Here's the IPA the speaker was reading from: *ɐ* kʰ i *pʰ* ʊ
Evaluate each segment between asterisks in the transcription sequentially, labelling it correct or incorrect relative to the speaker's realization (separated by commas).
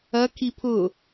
correct, correct